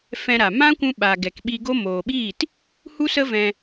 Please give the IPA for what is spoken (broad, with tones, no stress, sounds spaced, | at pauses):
f ɛ̃˧ ɾ a˨ m ã˦ kʷ ũ˧ ɓ a˨ ɡ ɛ˨ k ɓ i˧ ɡ o˦ m oː˨ ɓ iː˦˨ t | h u˦ s ə˦ v ɛ̃˧